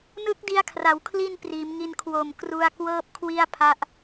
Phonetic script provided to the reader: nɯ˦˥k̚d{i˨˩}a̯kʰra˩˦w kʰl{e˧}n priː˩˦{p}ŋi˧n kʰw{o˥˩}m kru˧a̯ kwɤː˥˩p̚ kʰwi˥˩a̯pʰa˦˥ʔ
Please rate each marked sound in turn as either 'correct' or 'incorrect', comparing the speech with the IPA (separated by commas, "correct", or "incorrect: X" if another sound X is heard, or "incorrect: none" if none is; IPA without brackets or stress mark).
incorrect: i˧, incorrect: i˧, incorrect: m, incorrect: o˨˩